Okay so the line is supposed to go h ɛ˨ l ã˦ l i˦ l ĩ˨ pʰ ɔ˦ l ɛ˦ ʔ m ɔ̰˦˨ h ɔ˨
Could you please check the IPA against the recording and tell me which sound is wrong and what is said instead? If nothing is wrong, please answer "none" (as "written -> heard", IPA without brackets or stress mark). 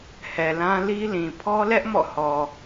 none